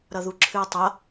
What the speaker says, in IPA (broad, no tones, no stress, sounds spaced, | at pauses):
ɾ ʌ ð u ǁʰ ɨ o̯ tˤ ʌ